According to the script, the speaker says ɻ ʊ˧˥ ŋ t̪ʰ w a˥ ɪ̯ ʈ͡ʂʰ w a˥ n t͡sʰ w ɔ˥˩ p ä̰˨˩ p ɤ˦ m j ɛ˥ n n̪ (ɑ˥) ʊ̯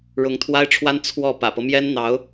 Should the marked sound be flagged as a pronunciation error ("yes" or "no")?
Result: yes